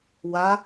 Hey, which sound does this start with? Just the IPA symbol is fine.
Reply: w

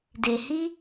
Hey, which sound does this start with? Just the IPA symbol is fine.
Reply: d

